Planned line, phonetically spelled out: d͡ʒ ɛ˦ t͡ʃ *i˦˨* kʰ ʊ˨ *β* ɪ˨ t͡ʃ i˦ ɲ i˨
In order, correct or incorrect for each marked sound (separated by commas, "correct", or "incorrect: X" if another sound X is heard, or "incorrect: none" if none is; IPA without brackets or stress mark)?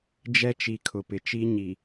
incorrect: i˨, incorrect: p